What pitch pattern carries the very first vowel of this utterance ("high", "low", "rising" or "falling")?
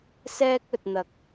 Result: high